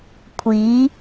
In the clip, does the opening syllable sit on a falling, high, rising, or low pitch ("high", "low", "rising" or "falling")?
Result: rising